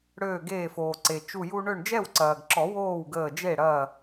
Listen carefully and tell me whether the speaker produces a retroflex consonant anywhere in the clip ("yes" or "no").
yes